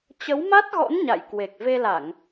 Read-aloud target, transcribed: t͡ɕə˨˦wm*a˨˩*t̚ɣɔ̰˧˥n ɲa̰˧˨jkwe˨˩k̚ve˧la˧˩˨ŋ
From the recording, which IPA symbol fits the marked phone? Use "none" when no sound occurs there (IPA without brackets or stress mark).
a˦˥